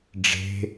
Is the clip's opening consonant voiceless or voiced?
voiced